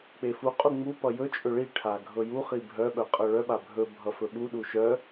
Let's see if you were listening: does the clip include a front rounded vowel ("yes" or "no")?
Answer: yes